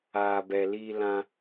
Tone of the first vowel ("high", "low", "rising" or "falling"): low